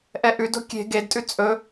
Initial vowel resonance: oral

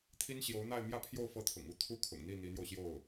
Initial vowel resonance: oral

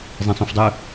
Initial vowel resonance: nasal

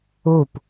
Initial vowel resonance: oral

